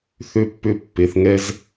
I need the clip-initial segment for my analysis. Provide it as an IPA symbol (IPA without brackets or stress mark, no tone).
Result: θ